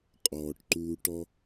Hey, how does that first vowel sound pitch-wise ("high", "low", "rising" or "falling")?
low